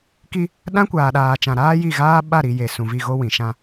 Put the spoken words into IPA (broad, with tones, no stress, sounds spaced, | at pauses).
k i˦ | ɗ ã˦ kʷ aː˨ ɗ aː˨ t͡ʃ ã˨ ɾ aː˦ j i˦˨ ɣ aː˦ ɓ a˦˨ ɾ i˨ j e˨ s ũ˨ v i˦˨ ɣ o˦ w ĩ˨ ʃ ã˦